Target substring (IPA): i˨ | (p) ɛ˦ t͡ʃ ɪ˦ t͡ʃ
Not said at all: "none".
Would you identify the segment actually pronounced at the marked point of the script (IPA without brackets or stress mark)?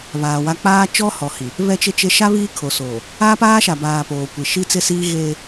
β